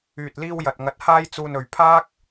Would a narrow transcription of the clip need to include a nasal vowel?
no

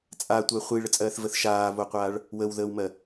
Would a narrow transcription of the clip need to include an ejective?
yes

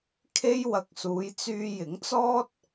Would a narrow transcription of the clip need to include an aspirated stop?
yes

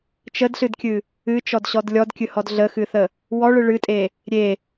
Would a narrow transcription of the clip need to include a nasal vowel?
no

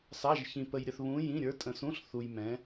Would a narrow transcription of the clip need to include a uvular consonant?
no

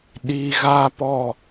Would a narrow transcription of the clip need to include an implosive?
yes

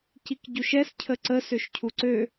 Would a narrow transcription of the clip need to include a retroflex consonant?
no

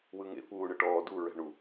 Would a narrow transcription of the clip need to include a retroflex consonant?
yes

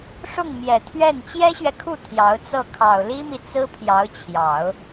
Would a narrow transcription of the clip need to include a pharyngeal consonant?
no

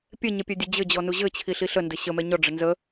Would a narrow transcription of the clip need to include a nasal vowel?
no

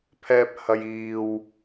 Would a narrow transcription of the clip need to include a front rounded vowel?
no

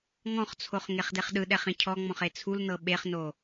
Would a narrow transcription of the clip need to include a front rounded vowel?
no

